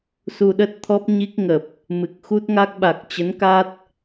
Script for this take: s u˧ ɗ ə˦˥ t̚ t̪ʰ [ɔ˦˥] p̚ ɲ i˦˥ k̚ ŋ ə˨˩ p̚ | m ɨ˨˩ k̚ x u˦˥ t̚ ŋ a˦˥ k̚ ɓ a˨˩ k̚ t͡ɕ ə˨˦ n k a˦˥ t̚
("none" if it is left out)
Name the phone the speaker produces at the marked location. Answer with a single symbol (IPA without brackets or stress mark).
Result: ɔ˦˥